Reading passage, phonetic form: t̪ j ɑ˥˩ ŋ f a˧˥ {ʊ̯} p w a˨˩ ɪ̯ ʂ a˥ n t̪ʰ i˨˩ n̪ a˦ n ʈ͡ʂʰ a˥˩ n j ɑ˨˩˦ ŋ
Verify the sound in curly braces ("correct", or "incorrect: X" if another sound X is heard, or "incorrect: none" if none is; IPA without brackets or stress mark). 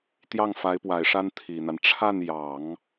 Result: incorrect: ɪ̯